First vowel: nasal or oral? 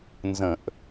nasal